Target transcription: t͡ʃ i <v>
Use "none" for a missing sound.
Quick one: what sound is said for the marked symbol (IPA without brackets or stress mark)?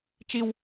w